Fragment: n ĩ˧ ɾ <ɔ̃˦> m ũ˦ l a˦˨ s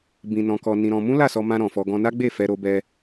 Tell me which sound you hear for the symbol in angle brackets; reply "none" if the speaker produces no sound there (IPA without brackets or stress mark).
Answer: ɔ̃˧